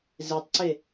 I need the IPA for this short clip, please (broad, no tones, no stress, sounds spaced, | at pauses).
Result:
z e tˤ ǀ e